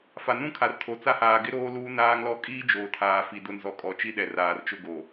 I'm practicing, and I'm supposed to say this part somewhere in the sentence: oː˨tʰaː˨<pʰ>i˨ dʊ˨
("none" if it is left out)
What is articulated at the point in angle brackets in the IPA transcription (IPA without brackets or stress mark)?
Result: f